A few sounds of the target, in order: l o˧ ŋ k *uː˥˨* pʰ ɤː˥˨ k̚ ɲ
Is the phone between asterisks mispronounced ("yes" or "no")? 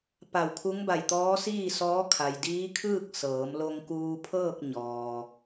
yes